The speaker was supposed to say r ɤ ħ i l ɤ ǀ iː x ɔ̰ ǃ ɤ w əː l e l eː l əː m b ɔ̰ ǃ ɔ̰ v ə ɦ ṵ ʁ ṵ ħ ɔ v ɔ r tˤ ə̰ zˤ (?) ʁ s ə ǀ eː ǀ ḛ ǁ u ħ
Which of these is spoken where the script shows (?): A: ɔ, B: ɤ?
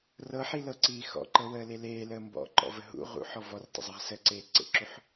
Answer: B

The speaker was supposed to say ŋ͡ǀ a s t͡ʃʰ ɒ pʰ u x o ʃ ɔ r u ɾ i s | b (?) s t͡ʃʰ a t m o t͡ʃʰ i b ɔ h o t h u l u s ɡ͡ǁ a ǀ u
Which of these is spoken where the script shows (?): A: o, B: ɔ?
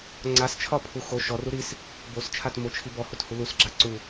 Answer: A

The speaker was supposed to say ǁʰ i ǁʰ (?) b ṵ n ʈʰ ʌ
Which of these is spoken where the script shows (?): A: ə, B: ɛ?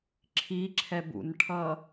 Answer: B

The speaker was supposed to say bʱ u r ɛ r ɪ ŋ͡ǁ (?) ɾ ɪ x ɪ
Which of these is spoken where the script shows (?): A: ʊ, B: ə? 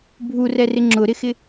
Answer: A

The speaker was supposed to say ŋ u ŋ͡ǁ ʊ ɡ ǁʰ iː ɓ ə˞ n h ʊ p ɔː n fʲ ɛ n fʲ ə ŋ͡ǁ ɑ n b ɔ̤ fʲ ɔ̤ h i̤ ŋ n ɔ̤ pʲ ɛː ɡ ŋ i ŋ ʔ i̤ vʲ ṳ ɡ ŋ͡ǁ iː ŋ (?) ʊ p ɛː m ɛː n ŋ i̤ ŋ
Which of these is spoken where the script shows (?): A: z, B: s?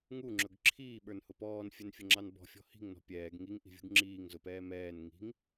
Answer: A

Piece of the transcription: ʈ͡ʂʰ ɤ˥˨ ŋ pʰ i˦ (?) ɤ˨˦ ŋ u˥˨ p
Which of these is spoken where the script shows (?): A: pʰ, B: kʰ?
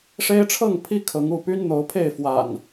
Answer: B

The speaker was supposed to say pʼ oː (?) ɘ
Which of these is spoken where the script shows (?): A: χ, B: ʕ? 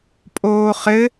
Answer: A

